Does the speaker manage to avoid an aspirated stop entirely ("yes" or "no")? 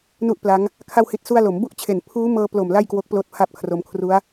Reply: no